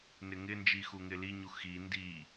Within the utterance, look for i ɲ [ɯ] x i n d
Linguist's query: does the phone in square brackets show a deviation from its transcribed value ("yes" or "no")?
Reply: yes